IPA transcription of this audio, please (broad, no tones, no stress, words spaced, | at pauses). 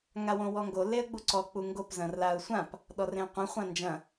ŋawõwɔŋɡo leə̯ɡ͡buǀɔ k͡puŋɡop zɐ̃rlaʊ̯sʷãp | ɗɔrẽə̯qʷẽ χʷãnd͡ʒɐ̃